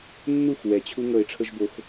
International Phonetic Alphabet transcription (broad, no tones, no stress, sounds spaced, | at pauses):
nː u x w ɛ t͡ɕʰ u ŋ ɤ ɪ̯ ʈ͡ʂʰ ɤ ʒ b o x